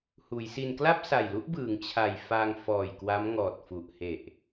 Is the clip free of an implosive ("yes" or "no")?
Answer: yes